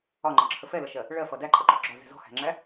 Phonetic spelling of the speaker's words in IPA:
ɒ ŋ͡ǃ ə ǁʰ ə f ɛ l ʌ ʃ ɜ | ɭ ɜ f ʌ d æ ǃʼ ʌ ǃ ɔ ɡ͡ǁ ɒ z ɛ̤ z ɔ̤ h æ̤ ŋ͡ǁ æ

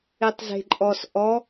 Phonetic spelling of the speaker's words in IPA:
e tˤ z e̤ ǃʼ ɔ s ʔ ɔ

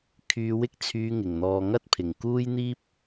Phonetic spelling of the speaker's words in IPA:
kʰ yː˧ w ɪ˥ k̚ t͡sʰ yː˧ ŋ ɪ˨˩ ŋ n̪ ɔː˨ ŋ ɐ˥ t̚ pʰ ɪ˨˩ ŋ k uː˥ j n̪ iː˥ p̚

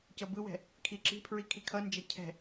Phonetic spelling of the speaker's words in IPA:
c ʌ b ɯ w ɛ̤ | kʰ i ǁ i̤ pʰ ɹ i kʰ i kʰ ʌ n d͡ʒ a cʰ ɛ̤

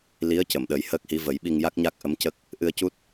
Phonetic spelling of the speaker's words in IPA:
l i˧˥ ə̯ c ə˨˩˨ m ɗ ə˨˩˦ j h əː˦˥ k̚ h i˧˥ v ə˨˩˦ j ɓ i˧ ŋ j a˦˥ k̚ ɲ a˦˥ k̚ ʔ ə˧˥ m c ə˦˥ k̚ | ʔ ɨ˧ ə̯ c u˦˥ t̚

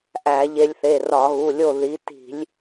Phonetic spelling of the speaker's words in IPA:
ʔ æ˧˩˧ ʎ e˧ lʲ θ e˩˧˩ r ɒ˧˩˧ ɣ u˩˧˩ lʲ o˥˨ ð i˩˧ t i̤˧˩˧ lʲ

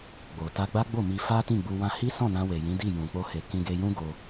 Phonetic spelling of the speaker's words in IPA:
ɡ͡b o˨ t a˧ ɡ͡b a˦ ɡ͡b o˦˨ m i˧ f a˦ t ĩ˦˨ ɡ͡b u˧ w ã˧ h i˦ s ɔ̃˦˨ n ã˧ w e˨ j ĩ˨˦ d i˦˨ j ũ˨ k͡p o˧ h e˨ k ĩ˧ ɡ e˧ j ũ˦ ɡ o˧

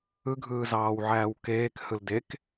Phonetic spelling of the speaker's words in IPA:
ɯ ɡʱ ɯː z ɑː w ʕ æː w k eː k h ɯ l d e k

